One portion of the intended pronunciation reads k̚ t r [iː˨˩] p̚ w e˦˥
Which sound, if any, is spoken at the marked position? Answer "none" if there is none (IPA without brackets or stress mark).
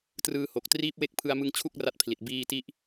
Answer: iː˦˥